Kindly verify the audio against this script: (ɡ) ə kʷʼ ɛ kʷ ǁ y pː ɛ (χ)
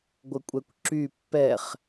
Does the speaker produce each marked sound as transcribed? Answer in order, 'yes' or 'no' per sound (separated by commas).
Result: no, yes